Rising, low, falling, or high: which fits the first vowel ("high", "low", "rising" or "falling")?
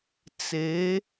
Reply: rising